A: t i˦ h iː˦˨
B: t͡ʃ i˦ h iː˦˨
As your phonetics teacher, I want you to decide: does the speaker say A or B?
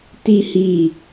A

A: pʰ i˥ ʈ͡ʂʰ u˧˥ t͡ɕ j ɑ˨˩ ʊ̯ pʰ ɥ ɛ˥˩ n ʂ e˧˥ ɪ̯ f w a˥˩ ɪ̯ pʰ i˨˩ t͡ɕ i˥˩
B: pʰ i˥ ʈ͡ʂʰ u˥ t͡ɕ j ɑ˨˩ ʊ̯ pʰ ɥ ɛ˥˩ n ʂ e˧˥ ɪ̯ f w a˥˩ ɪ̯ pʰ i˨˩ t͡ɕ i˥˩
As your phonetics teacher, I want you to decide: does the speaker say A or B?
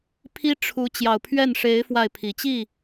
A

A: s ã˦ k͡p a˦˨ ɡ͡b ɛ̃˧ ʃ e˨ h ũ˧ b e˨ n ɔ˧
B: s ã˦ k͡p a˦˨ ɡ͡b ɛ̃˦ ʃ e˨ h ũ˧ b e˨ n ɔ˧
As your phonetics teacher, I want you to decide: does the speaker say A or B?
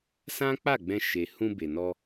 A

